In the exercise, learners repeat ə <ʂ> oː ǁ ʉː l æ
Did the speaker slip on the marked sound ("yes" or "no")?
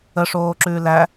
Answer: no